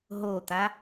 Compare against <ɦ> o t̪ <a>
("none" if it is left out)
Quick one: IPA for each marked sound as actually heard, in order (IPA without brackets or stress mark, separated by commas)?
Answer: ɦ, a